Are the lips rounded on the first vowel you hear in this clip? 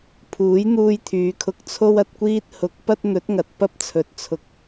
yes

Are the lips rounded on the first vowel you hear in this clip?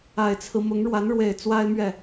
no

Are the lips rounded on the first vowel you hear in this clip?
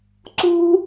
yes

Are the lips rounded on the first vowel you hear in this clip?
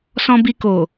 yes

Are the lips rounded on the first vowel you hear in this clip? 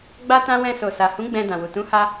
no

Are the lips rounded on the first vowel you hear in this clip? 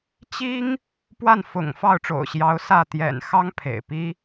no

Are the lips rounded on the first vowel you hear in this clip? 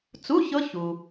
yes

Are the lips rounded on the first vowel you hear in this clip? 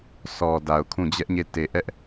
yes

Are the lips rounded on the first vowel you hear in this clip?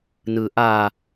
no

